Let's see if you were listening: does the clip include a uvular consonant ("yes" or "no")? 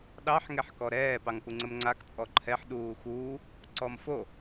no